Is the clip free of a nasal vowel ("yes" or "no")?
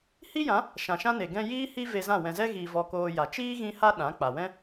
no